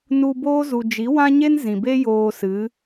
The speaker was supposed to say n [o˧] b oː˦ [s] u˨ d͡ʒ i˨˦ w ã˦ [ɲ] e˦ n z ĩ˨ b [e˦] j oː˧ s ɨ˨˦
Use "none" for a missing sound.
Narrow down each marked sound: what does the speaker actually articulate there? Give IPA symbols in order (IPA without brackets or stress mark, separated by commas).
u˧, z, ɲ, e˦